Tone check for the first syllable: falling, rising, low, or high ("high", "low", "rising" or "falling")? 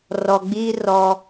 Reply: low